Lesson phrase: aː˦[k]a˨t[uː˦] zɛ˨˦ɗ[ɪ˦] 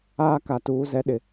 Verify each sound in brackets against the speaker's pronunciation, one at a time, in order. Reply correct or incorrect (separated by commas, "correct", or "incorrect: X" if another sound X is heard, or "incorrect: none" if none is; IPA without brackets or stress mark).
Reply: correct, incorrect: uː˨˦, incorrect: ɪ˨